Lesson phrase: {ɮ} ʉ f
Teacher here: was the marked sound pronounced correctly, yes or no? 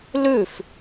no